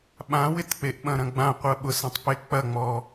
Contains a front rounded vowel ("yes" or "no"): no